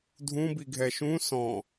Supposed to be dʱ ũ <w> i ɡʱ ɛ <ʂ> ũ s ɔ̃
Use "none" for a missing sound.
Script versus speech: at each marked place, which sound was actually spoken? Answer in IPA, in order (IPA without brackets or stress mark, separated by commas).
b, ʃ